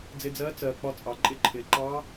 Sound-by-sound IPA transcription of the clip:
d͡z ɪ˧ d͡z ɜː˧˥ t͡s ɜː˩ k͡p ɒ˧ t͡sʼ ɑ˩ ǃʼ ɪ˧ ǃʰ ɪː˩ ǃ ɑː˧˥

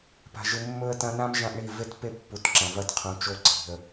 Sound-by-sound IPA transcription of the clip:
p a̤˨ ʒ ɨ˨ mː ɵ˦ ə̯ t ɐ̃˦ n ã˦ m ʒ ã˦ ʔ ɳ i˦˨ v e˦ t p e˦ pː u˨ t ǁ ɐ̃˨ v ɐ˦ t qʰ ũ˨ t͡ʃ o˦ ǀ i̤˨ ə̯

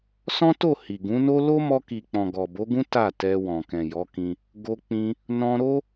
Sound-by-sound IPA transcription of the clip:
s ɔ̃˦ t o˦˨ h i˨ ɡ ũ˨˦ n o˦ l o˦ m ɔ˧ k i˨ k͡p ɔ̃˨ ɡ ɔ˨ b o˨˦ ɡ ũ˦ t a˦˨ t ɛ˧ w ɔ̃˨ k ɛ̃˨ j ɔ˨˦ k ĩ˧ | ɡ o˧ k͡p ĩ˧ | n ɔ̃˧ ɾ o˦

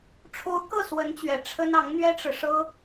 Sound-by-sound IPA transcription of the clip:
ʈ͡ʂʰ o˧˥ ʊ̯ k ɤ˥˩ s w ə˧˥ n t͡ɕ ɥ ɛ˨˩ ʈ͡ʂʰ ə˥ n ɑ˧˥ ŋ n̪ ɥ ɛ˥ ʈ͡ʂ ɻ̩˨ ʂ ɤ˥

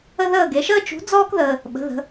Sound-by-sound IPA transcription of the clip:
ə˥ ð əː˥˧ ɡ e˨˥ ʃ əː˥ t͡ʃ ṳ˨˥ d͡z ɔː˥ k ð əː˨ | ɓ ə̤˨˥ ð ə̤˨˥

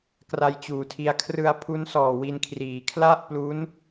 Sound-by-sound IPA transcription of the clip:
k r a˧ j t͡ɕ uː˩˦ tʰ i˧ a̯ kʰ r ɯ˧ a̯ pʰ u˦˥ n s ɔː˨˩ w i˧ n kʰ r iː˩˦ kʰ l a˥˩ ʔ p l u˦˥ n

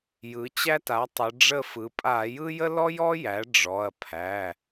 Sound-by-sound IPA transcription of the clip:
j ɯ˩˧ t͡ɕ æ˦ t a˩˥ tˤ ə˩˧ ɖ͡ʐ ə˦˨ f ɯ˩˧ pʼ a˧˩˧ j ɯ˦ j ə˦ l ɔ˦ j ɔ˦ j æ˩˥ ɖ͡ʐ ɔ˩˧˩ ɐ̯ pʰ æ˩˧˩

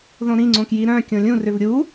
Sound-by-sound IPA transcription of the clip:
ð õ ɾ ĩ ŋ͡ǀ õ k j i ɾ œ̃ kʲ õ lʲ ũ r ʏ v ɾʲ u

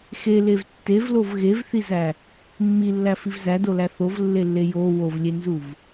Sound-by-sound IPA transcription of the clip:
x e l e v tː e v l o v ɣ e v θ i z æ | mː i lː æ f i v z æ d o l æ θ o v lː e lː e j o w o v lʲ e n z u v

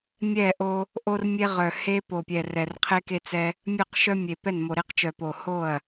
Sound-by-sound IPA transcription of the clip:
mʲ ɛ˥˩ ʔ o˦ | ʔ o˦ r mʲ e˦ ʁ œ˨˩ h e˦ p o˨˩ pʲ ɛ˨˩ r ɛ˨˩ r qʰ e˦ k e˦ t͡s ɛ˦ | mʲ œ˥˩ q ʃ œ˦ mʲ e˨˩ p ɛ˥˩ n m o˨˩ ɾ e˦ q t͡ʃ œ˨˩ p o˨˩ h o˥˩ ɐ̯

